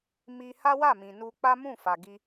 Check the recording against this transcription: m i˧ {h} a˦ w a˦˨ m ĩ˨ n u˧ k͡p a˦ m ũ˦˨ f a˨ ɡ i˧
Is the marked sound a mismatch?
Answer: no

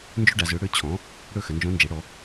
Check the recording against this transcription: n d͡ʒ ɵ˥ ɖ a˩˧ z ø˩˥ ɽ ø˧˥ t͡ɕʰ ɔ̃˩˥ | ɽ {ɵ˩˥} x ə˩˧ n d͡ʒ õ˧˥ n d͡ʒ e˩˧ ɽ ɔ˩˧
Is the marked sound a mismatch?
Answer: yes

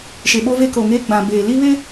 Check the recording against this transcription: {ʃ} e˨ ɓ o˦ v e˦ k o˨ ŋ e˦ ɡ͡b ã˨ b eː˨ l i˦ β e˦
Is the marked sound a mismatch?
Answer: no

